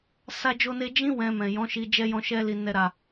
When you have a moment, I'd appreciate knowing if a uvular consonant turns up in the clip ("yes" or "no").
no